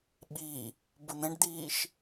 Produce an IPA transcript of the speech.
ɓ i | b ʊ n̪ ɛ̃ ɖ d̪ iː ʃ

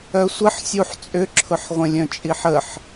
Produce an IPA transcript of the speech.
œ sʷ ə ħ sʲ u ħ t͡sʼ ʏ ǁʰ ʊ ħ ʁʷ ə̃ lʲ œ̃ t͡ʃʼ i ħ ə ħ

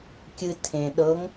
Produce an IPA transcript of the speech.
kʲ ɨ tʰ ẽ ɗ ɤ ŋ

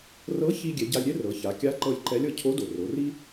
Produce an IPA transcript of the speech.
r ɤ˧˥ ç i˧ ɡʲ ɛ˩˧ ɟ a˧ lʲ ɾʲ ɛ˥ r ɤ˩˧ ç a˩˧ kʲ a˧˥ ǃ ɤ˧ lʲ ǃ ɛ˧˥ lʲ ɤ˧ cʰ o˧˥ d o˩ r o˩˧ r i˥

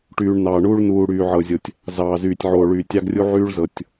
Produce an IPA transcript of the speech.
ʈ yː˨ ɳ n ɑː˨ ɳ uː˦ ɭ n uː˨ ɽ yː˨ ʕ ɤ˨ zʲ o˨ tʲ | z ɑː˨ z yː˨ tʲ ʕ oː˨ ɭ yː˨ tʲ ɑ˦ ɡ rʲ u˦ ʕ yː˦ ɭ z ɤ˨ tʲ

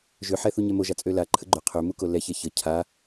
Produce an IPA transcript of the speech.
ʒ ø ħ ɛ θ u ɲ ɛ m o ʒ a t͡sʼ ø l a ǃʰ ə ɡ͡ǃ ø qʰ ø m u k o l ɛ ç ɛ ç ə cʰ a

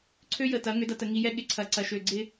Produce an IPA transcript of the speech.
ǀʰ ø˦ j ə˨ t ɐ˨˦ ŋ ʏ˨˦ d ɐ˨ t ə˨ ŋ i˨ j ɛ˦ ɠ ɪ˨ ǀʰ ɐ˨ ǀ ɐ˨ ʃ ø˨ ɡ͡ǀ ɪ˦

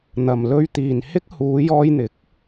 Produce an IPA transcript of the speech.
n̪ ɐ˨ m l ɵ˧ ɥ t̪ iː˨ n h ɪ˥ k̚ h uː˨˧ j ɔː˧ j n̪ ɪ˨˥ k̚

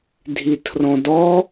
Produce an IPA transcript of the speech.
dʱ i tʰ r ɔ̃ d ɔ

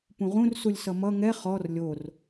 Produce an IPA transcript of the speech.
p ũ ʁ ũ r s u lʲ s ʌ m ʌ ŋ ɛ χ ɔ r lʲ o r

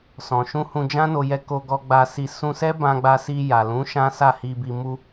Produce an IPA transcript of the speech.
s ɔ̃˨ ʃ ũ˧ h ũ˧ d͡ʒ ã˦ n o˧ j ɛ˧ k o˧ ɡ ɔ˧ ɡ͡b a˧ s i˧ s ũ˧ s ɛ˦ b ã˧ ɡ͡b a˧ s i˧ j a˨ l ũ˨˦ ʃ ã˦ s a˦˨ h i˧ b i˧ m u˧

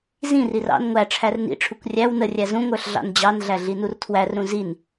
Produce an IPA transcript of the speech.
z ĩ r i r ɑ̰ n ŋʷ æ ʈ͡ʂʰ æ r n ḭ ʈ͡ʂʰ u kʷ rʲ æ w n ə rʲ æ z ũ ŋʷ ə˞ ɬ ɮ ɑ̰ n d͡ʑ ɑ n ɮ æ ɮ i n u r tʰ w æ r ɾ ũ z i n

